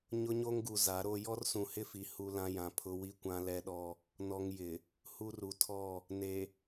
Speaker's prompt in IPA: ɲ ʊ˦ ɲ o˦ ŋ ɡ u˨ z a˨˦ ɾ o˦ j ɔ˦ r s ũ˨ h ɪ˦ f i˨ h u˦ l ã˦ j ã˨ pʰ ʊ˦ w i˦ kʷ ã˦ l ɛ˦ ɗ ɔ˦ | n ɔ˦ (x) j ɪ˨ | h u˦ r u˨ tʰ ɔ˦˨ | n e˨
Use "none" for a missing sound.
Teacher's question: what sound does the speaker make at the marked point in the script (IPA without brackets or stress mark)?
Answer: ŋ